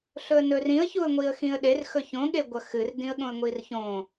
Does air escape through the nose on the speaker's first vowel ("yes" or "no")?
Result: no